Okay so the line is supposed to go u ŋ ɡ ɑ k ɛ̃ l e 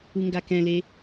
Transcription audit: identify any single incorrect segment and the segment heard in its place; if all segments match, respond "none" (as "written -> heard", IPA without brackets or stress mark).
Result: ɑ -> a